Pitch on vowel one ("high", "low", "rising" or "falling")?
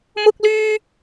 high